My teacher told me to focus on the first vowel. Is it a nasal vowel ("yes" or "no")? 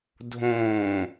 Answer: yes